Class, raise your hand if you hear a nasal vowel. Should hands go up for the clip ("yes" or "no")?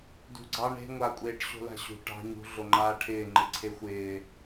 no